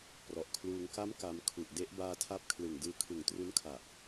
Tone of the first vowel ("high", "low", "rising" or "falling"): low